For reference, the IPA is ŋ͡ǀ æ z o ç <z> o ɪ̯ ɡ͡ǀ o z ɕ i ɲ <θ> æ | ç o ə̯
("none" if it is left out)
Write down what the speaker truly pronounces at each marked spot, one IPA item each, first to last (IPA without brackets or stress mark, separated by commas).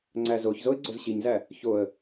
z, z